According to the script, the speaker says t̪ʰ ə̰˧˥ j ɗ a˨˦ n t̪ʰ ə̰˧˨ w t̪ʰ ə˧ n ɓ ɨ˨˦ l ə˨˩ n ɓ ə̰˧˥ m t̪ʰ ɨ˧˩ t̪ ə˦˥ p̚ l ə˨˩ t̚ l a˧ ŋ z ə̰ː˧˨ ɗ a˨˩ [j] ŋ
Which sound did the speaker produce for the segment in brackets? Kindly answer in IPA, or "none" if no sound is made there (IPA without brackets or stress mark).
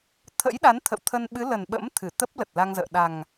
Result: none